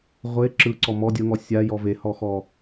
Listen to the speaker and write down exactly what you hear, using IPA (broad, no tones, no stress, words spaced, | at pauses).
ʁʷe ǁɯ ǀɔmɔ dʲɤŋɔ sʲa jɔvehɔxɔ